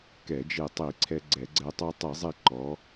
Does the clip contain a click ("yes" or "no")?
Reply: yes